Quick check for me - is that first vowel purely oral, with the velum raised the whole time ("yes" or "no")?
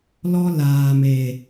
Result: yes